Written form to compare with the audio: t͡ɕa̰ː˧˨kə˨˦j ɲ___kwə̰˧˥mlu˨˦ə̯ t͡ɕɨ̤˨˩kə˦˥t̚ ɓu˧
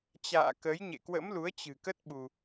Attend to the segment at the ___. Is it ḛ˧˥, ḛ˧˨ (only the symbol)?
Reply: ḛ˧˨